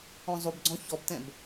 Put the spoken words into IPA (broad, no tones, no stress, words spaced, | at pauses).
ɔ̃zˤubɡ͡ǀɔ̃ çɔbtɛ̃b